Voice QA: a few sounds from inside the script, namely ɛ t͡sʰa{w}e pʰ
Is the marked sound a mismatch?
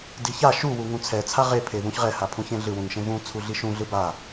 yes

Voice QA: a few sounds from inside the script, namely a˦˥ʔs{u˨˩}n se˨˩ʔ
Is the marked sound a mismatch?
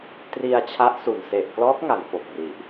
no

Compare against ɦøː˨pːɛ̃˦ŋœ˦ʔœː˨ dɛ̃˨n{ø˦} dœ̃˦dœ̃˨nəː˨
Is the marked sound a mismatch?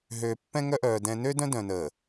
no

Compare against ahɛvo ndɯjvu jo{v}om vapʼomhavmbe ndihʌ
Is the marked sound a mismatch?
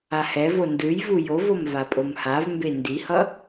no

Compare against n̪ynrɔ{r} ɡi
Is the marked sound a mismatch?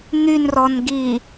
yes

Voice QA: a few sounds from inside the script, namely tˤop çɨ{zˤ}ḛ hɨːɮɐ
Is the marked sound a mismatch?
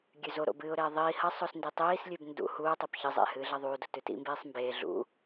no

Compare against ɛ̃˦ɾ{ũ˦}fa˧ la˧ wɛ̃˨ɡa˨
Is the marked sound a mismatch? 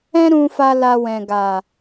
yes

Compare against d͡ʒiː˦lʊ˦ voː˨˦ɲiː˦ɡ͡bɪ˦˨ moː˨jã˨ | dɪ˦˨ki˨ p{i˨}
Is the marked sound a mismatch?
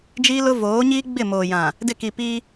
yes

